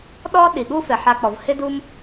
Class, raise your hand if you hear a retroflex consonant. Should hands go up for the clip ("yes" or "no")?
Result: no